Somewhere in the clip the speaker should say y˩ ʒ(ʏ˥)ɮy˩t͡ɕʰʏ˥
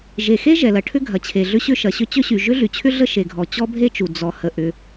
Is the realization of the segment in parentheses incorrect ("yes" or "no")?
no